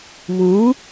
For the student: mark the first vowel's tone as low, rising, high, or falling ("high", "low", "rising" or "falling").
rising